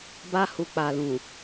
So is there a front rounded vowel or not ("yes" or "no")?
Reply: no